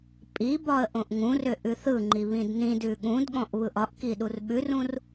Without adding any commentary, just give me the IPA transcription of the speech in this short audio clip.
pʼ i b ɒ ə̯ ʔ õ ʔ ŋ ũ r ʏ ʔ ʉ θ ɯ ŋ͡ǃ i β ĩ d n ĩ d ʉ ɠ ũ d ɠ ɔ̃ ʔ β ɯ ʔ ɒ ʔ k i ɗ u r ɓ ʉ r ũ r

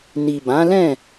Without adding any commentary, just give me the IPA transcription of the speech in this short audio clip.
n i˨ b ã˨˦ l ɛ̃˦˨

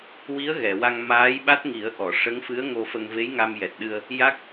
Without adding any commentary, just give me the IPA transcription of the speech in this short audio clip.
w i˧˥ ə̯ ɣ ɛ˨˩˨ w a˧ ŋ m aː˧˥ j ɓ a˦˥ t̚ ŋ i˨˩˦ ə̯ ʔ ɔ˨˩˨ ʂ ə˧˥ ŋ f ɨ˧˥ ə̯ ŋ o˧ f ə˧ ŋ v e˧˥ j ŋ a˧ m j ɛ˨˩ t̚ ɗ ɨ˧ ə̯ | j a˦˥ k̚

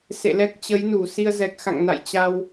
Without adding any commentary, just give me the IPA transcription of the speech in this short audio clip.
s ḛ˧˨ l ɛ˦˥ k̚ t͡ɕ ə˨˦ j n u˧˩ s i˧ ə̯ z ɛ˨˩ k̚ x a̰˧˨ ŋ n a̰˧˨ j t͡ɕ a˧ w

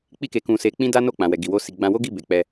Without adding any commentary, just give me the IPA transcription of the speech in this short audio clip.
k͡p i˦ k e˧ k ũ˧ s e˧ k͡p ĩ˦ d a˦ n o˦˨ k͡p ã˨ w ɛ˨ ɡ i˨ w o˧ s i˨ ɡ͡b ã˧ w o˦ ɡ i˦˨ b e˨ k͡p ɛ˧

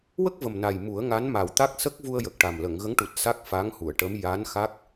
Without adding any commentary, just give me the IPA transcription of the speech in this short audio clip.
w ə˦˥ k̚ v ə˨˩ m n a˨˩ j m u˨˩˦ ə̯ ŋ a˧˥ n m a˨˩ w t̪ a˦˥ k̚ s ə˦˥ k̚ v u˧ ə̯ j ə˨˩ k̚ ʈ a˨˩ m l ə˨˩˨ ŋ ɣ ə˧˥ ŋ ʈ u˨˩ t̚ s a˦˥ k̚ f a˧˥ ŋ h u˨˩˨ ə̯ ʈ ə˧˥ m j a˧˥ n x a˦˥ k̚

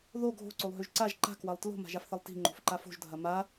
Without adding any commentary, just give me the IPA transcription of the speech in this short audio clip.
ð o ɡʱ o̤ ǀ o lˠ ɦ ø ʒ ǀ a ʒ ǃ a̤ k w ɐ lˠ t l o̤ m a̤ ʒ a f θ ɐ lˠ t i̤ ŋ͡ǃ o̤ f ǃ a f o̤ ʒ dʱ ɐ m a

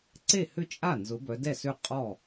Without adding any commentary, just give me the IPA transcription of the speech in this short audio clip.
ǀ e˥˩ h ʏ˥˩ t͡ʃʼ a˥˩ n z ʊ˨˦ b œ˨˦ d ɛ˥˩ s ø˥˩ qʼ ɔ˥˩

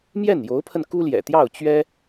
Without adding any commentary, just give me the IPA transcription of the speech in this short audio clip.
m j ɛ˥˩ n j o˧˥ ʊ̯ pʰ ə˧ n k u˥ l j ɛ̰˨˩ t̪ j ɑ˥˩ ʊ̯ t͡ɕ ɥ ɛ˥

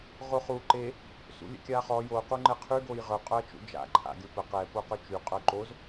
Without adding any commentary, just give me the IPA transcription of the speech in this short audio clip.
ʁ o χ u ǃ e | s ṵ lʲ ə̰ kʲ a χ ɔ j o q u ŋ͡ǃ ɛ qʰ y ɡ o j ʁ œ qʼ œ ɐ̯ t͡ʃ ṵ d͡ʒ a̰ ǃʰ a̰ ɡʲ o p ə q ɛ p o q ø t͡ʃ y qʼ œ ǃ o z

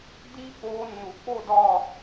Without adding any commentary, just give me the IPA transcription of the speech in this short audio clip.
d iː˦˥ k͡p oː˨˦ nː u˩ k͡p o˥˩ d ɒ˥˩

